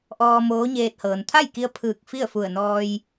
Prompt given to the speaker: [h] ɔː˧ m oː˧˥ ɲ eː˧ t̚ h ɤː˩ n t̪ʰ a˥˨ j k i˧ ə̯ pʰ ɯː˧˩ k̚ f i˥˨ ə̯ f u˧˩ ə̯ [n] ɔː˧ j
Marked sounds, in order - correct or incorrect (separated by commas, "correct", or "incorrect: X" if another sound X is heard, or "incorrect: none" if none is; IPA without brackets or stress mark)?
incorrect: ʔ, correct